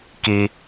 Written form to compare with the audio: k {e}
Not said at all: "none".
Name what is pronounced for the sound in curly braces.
i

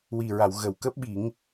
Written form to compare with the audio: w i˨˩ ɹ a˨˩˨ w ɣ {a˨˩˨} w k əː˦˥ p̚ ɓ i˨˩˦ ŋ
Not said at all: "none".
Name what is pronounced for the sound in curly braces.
ə˨˩˨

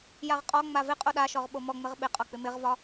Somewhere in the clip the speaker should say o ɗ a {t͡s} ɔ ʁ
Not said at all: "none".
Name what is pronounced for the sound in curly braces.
ʃ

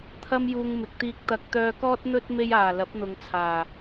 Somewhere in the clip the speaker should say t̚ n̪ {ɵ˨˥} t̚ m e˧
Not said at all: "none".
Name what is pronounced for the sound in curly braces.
ɵ˥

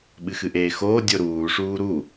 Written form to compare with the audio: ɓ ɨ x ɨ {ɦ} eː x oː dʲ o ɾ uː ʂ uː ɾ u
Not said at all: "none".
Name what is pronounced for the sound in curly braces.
ʔ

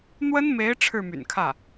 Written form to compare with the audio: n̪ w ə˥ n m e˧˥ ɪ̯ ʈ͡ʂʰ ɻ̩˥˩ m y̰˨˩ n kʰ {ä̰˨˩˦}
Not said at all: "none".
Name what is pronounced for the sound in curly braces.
ä˥˩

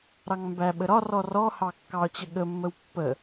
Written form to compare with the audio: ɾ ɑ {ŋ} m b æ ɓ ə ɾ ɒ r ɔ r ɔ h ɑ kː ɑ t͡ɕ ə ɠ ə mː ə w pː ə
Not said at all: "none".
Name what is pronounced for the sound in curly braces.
ŋ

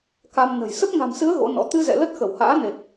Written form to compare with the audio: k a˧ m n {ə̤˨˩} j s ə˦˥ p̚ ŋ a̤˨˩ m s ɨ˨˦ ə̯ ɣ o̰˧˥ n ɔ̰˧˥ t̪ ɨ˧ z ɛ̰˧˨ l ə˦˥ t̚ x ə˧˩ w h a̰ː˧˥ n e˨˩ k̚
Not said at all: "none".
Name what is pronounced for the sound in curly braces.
ə̤˨˩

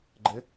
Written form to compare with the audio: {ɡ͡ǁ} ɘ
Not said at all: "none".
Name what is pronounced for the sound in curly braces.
ɡ͡ǃ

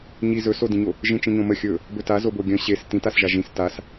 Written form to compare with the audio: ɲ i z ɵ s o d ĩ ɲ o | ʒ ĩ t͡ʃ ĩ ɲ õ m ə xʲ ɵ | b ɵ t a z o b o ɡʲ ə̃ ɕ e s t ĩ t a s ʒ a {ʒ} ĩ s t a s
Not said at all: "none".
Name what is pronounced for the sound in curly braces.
ʒ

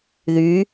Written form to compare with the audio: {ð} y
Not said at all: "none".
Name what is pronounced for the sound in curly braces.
ð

